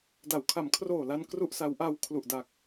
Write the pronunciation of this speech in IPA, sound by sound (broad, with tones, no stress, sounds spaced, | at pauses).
d a˩˦ w kʰ a˩˦ m kʰ r oː˨˩ l a˧ n k r u˥˩ ʔ s a˦˥ w ʔ a˧ w kʰ l u˨˩ ʔ d a˨˩ k̚